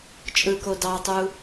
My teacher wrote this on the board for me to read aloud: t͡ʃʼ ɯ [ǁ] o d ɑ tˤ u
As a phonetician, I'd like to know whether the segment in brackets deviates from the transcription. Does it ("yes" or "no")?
yes